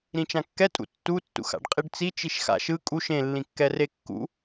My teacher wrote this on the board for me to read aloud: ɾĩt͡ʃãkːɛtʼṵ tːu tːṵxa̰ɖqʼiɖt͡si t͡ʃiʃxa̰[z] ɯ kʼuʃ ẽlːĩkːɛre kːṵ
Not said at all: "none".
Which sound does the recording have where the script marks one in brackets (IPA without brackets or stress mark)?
ʃ